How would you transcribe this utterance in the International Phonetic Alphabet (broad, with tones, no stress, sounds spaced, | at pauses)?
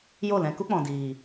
j o˦˨ l ɛ̃˧ k u˦ k͡p ɔ̃˨ d iː˨